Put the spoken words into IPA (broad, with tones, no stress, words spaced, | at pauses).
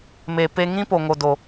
me˨ pe˧ŋĩ˦ po˨ŋo˨do˨